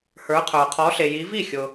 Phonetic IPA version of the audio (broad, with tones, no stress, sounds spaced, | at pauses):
h ə˞˨˦ qʰ ə˞˨ qʰ ɔ˨˦ ɬ e˨ j i˨˦ v i˥˩ xʲ ʊ˨